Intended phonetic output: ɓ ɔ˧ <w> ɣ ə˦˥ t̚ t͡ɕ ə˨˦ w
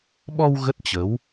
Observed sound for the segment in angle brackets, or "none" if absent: w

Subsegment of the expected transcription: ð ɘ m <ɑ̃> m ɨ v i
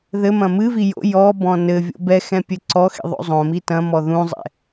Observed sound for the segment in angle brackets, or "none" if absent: ɐ̃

